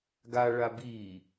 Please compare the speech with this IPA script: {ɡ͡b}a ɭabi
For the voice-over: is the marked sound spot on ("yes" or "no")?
no